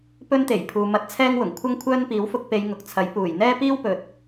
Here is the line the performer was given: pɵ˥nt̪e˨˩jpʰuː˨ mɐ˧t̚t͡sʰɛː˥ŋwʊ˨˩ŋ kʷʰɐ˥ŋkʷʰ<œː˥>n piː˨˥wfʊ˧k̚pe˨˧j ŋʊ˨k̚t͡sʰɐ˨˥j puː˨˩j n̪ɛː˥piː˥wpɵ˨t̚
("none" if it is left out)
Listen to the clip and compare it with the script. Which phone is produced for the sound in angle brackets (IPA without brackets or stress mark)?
œː˥